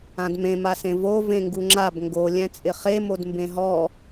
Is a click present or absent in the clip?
present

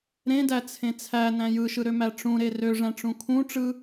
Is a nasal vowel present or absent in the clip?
present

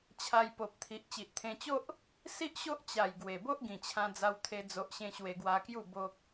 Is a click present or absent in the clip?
absent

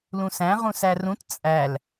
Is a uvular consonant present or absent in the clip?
present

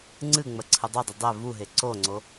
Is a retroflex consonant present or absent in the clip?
absent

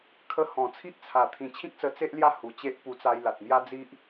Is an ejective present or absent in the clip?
absent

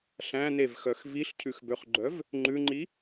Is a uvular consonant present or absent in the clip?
present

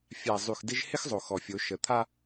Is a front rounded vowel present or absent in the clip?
present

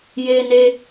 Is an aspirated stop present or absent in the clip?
absent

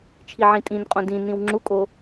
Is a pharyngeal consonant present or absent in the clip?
present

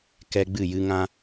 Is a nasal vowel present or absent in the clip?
present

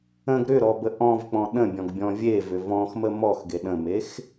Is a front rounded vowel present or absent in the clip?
present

